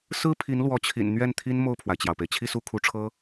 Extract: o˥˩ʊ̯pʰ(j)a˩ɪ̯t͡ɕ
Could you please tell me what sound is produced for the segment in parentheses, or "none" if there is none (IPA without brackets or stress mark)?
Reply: w